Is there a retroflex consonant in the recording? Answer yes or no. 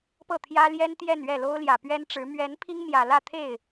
yes